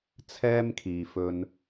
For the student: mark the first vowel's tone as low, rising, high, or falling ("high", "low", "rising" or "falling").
high